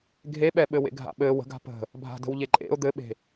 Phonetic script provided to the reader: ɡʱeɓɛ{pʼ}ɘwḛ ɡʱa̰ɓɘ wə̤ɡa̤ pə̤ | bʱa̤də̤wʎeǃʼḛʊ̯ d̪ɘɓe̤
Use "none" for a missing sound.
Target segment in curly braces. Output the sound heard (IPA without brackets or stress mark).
ɓ